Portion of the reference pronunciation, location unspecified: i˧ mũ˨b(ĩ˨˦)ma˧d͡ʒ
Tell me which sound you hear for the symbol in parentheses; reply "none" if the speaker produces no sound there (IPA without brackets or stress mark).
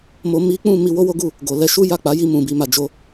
i˨˦